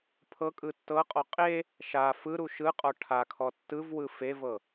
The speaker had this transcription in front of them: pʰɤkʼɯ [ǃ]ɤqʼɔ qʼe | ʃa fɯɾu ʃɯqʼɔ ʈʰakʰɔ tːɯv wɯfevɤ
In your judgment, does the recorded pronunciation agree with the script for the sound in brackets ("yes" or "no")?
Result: no